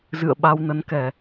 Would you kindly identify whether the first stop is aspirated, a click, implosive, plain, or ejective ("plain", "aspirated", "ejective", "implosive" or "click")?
implosive